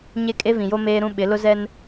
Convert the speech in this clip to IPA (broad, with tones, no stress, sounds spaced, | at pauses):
ɲ e˦ kʼ e˦ v ĩ˨ j o˦ m eː˦ ɾ ũ˦ ɓ ɪ˨˦ l ʊ˦ z ɛ˦ n